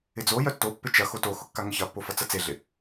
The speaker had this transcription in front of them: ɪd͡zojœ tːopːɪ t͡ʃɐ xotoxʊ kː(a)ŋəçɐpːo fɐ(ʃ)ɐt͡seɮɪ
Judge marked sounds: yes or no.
yes, no

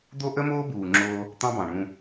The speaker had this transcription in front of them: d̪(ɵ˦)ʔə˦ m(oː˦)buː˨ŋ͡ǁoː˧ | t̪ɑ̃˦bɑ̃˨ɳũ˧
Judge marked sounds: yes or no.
no, yes

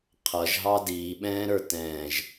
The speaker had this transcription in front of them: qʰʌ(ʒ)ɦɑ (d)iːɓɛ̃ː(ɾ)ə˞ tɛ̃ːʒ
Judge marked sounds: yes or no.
yes, yes, yes

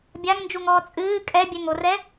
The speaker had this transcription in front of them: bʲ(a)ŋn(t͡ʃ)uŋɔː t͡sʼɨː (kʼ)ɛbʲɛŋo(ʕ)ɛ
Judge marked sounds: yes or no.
yes, no, yes, no

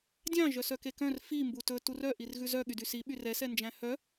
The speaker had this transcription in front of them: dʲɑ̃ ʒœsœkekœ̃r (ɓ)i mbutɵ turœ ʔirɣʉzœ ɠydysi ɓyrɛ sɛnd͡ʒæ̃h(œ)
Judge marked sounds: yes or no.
no, yes

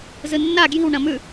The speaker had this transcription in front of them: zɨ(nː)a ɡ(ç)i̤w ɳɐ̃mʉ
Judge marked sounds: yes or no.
yes, no

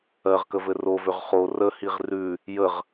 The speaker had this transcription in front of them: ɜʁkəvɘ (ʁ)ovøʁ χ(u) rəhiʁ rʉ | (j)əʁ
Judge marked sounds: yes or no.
no, no, yes

